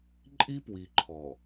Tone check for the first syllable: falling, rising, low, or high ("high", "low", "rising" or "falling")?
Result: high